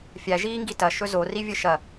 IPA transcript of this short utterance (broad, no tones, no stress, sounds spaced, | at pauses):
fʲ æ ʒ iː ŋ ɡ i t ɐ ʃ ɵ z o r i vʲ ɘ ʃ ɐ